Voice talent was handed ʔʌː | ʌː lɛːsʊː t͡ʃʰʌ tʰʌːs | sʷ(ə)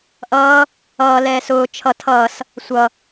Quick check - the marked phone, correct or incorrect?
incorrect